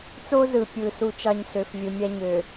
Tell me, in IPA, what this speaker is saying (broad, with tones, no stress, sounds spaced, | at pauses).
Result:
t͡s o˦ z ɯ˨ pʲ ɯ˨ s u˦ t͡ʃ ɑ˦ ɲ s ø˨ f vʲ ɯ˨ mʲ æ˦ ɲ ø˨